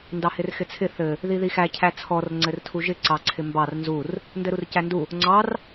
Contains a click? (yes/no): yes